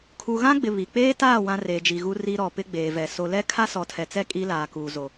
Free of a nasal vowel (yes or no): no